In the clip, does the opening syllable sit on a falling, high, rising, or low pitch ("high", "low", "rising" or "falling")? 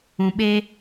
low